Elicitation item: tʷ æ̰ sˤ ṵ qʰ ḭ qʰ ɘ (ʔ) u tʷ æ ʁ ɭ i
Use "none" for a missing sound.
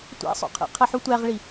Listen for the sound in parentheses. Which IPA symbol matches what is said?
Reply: ħ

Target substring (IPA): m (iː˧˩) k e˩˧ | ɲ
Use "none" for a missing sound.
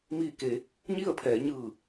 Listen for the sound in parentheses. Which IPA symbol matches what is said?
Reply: iː˧˩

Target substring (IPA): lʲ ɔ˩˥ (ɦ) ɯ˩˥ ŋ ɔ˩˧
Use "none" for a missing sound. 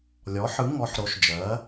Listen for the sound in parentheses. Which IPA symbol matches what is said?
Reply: ħ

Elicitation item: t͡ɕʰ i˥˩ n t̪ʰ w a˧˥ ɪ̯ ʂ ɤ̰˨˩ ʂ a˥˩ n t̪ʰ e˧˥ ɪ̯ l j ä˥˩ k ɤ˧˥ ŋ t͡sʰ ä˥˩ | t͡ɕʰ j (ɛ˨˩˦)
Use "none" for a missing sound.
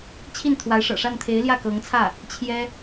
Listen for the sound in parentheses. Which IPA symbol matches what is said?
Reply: ɛ˥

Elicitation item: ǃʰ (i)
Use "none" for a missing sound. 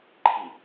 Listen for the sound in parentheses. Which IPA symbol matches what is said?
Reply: i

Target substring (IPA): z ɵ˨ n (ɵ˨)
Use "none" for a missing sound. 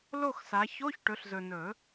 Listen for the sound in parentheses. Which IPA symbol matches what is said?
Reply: ɵ˨˩˦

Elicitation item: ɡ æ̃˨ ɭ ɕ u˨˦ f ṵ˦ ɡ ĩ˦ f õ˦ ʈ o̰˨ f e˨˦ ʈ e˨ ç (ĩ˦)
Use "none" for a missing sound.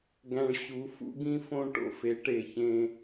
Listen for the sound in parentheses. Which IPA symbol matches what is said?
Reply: ẽ˦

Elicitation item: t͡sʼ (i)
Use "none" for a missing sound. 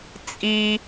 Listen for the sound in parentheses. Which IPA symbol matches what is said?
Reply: i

